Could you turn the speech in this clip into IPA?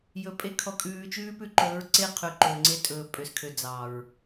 j ɵ˨ pʼ e˦ kʰ ɔ˨ kʼ ʉː˨ t͡ʃ ʉː˦ p ʉ˦ ǃ ɵː˨˦ ɹ ǀ e˦˨ qʰ y˨ ǃ ɵː˨ ŋ͡ǀ e˦ tʼ ɵː˨ pʼ ø˨ s kʰ ø˨ d͡z ɑ˨ ɹ

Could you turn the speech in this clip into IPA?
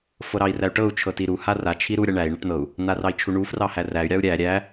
f ɤ ɾ ɑ i̯ r æ u̯ ʈ ɤ u̯ t͡ʃʰ ɤ t i ɾ u h a r a t͡ʃʰ i ɾ u ɾʲ a ɳ æ i̯ ɳ a ʈ n̪ ɤ u̯ | n̪ a r ɑ i̯ t͡ʃʰ u ɳ u f r ɑ h æ r æ y̯ ɾʲ ɑ u̯ ɾʲ æ ɾʲ æ

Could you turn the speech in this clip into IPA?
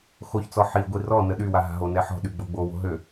x o ç t͡s ɔ ħ i ɡʷ i r ɔ n ə ɗ y w a ɦ a̤ ɦ o n ɛ ħ ɔ̤ ɗ y ɡ͡b o ɡ͡b o w o̤ ɦ ø

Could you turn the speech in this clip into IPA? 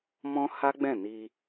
m ɔ̃˦ h a˦ ɡ͡b ɛ̃˦˨ n i˧

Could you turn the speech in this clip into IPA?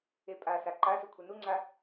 e pʼ a s a ǃ a s u kʷʰ e n u ŋ͡ǀ a

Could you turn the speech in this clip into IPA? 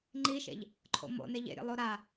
ŋ͡ǃ i ʃ ḛ ʎ | ǃʰ o̰ m o̰ n e ʎ ḛ ɾʲ ə̰ lˠ o ɾ a

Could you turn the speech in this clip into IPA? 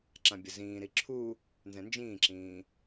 ǁ ã bʲ ə z ĩː ɾ i ǁʰ u | n z ɛ̃ n d͡ʒ ĩː ǁ ĩː

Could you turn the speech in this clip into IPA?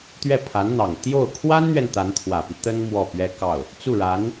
t̪ ɥ ɛ˥˩ pʰ a˧˥ n n̪ ɑ˨˩ ŋ t̪ j o˥˩ ʊ̯ kʰ w a˥ n n̪ ɥ ɛ˨ n t̪ a˧˥ n t̪ʰ w ä˨˩ p i˦ t̪ ə˥ n m w ɔ˥˩ p ɥ ɛ˥ k ɑ˥˩ ʊ̯ | t͡s u˥˩ ɻ a˧˥ n

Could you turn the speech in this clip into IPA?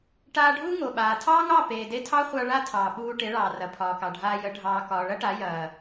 ʈ aː˧ ɖʱ u˦ ŋ o˨ ɓ aː˨ tʰ ɑː˦ ŋ ɑ˦˨ p eː˨ d e˧ tʰ ɑ˦ χʷ a˧ ɭ a˦ tʰ ɑː˨ ɓ uː˧ ʈ e˨˦ ɭ ɑː˨ r ɐ˨ pʰ ɒː˨ k ɑ˨ ɖʱ aː˧ j ə˨˦ ɖʱ ɑː˨ k ɒː˨ ɭ ɐ˦ ʈ a˨˦ j ɐː˨

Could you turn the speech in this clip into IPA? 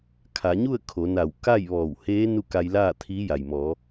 kʰ a˩˧ ɲ u˥˨ ə̯ kʰ o˩˧ n a˧˩ w k a˥˨ j ʋ ɔː˧˩ w h eː˧˥ n u˥˨ k a˧ j l aː˥˨ t̪ʰ iː˧˥ j a˩ j m ɔː˩˧

